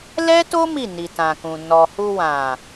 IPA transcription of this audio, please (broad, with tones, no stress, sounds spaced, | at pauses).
l ɛ˦ t o˦ m i˦˨ n i˨ t ã˨ k ũ˨ n ɔ˨ h u˧ w ã˨